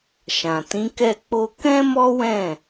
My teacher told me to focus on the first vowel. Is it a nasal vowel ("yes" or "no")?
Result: yes